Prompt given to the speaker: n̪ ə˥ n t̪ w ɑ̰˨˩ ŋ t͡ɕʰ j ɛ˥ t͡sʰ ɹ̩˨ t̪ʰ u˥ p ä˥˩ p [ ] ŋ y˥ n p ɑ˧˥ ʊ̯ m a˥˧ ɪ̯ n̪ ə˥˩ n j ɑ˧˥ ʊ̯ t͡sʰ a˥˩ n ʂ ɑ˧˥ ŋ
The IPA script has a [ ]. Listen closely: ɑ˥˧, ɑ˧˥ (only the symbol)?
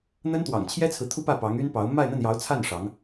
ɑ˧˥